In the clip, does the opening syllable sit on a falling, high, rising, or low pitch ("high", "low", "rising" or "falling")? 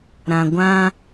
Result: low